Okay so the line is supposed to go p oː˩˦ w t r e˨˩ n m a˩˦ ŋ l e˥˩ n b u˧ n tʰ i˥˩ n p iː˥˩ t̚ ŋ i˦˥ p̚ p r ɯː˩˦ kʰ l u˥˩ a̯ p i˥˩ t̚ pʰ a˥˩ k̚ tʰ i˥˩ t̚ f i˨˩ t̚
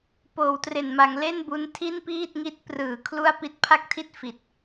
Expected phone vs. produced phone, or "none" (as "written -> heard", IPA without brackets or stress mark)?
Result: p̚ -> t̚